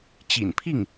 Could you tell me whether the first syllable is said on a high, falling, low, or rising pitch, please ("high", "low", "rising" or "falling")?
low